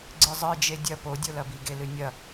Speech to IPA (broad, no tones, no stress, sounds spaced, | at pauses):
ɡ͡ǀ ɨ zˤ ɨ d͡ʒ e dʲ ɐ p o dʲ o l ɐ b i ɡ e l ɨ nʲ ɐ